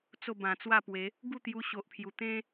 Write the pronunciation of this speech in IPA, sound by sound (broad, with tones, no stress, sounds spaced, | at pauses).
t͡s o˥˧ b ã˨˩ t͡s w a˥˧ p w e˨˦ | ɡ u˥˧ t̪ j u˧ ɕ o˨ ʔ pʰ j u˨˩ t̪ ẽ˦